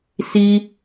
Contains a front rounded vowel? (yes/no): no